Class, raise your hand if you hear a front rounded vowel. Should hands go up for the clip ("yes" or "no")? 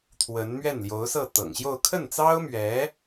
no